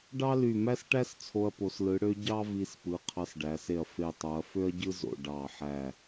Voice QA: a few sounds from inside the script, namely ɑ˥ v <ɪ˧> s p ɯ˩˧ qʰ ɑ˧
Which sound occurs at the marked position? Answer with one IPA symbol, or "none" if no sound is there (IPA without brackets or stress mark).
i˧